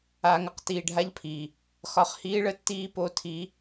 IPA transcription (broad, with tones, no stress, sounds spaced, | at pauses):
aː˨ ŋ ə˦ q t iː˨ ɖʱ a˦ ʎ pʰ iː˨ | x ɒ˨ χ h iː˦ ɭ ə˦ tː iː˦ p o˦ tʰ iː˦